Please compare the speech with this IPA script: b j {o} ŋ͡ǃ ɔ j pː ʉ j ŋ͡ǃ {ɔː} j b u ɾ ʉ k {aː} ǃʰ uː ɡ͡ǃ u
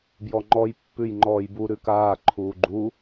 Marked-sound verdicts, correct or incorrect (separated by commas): incorrect, correct, correct